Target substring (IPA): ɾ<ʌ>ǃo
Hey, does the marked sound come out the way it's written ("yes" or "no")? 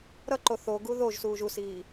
yes